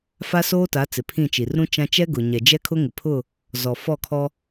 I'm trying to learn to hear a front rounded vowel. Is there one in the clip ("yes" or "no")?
no